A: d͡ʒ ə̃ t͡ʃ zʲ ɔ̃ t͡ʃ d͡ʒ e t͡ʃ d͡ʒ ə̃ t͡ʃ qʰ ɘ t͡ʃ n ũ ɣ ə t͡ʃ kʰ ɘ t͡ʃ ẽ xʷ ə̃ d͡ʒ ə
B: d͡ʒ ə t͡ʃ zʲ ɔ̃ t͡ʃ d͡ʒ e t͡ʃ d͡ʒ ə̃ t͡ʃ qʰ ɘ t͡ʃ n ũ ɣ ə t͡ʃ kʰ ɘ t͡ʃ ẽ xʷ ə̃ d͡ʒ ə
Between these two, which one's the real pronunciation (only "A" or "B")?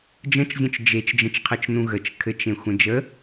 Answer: A